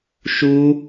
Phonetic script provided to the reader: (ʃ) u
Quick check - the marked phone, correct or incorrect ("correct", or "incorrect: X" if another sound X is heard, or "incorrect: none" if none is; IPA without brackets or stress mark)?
correct